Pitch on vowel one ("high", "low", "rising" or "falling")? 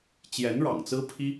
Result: rising